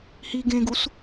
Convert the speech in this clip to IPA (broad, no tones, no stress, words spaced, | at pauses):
hi ɡẽɡus